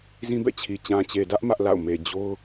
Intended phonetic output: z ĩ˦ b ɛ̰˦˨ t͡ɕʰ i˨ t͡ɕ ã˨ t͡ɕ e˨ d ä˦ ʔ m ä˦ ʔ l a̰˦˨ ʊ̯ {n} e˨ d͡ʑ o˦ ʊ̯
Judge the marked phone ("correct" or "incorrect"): incorrect